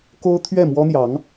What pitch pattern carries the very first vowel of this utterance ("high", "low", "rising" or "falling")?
high